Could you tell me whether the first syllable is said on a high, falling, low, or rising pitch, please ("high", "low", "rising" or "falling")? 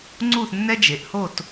falling